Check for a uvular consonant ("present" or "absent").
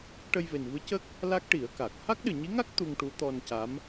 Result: absent